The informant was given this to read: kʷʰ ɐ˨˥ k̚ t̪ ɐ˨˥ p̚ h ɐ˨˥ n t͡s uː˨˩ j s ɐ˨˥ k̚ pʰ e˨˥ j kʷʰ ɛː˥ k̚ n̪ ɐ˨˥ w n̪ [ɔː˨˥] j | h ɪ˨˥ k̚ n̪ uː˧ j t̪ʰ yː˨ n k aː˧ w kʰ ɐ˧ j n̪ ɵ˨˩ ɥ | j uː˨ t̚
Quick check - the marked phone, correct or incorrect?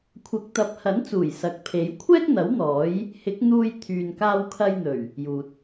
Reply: correct